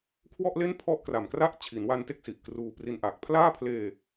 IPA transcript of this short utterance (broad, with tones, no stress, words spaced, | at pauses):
kʰwɔ˥˩ʔle˥˩n pʰɔ˥˩ʔkra˨˩mkra˥˩ʔ t͡ɕʰi˩˦nwa˧nte˥˩k̚ si˨˩ʔkruː˧pri˦˥nʔaː˨˩k̚ pʰlaː˥˩pʰleː˧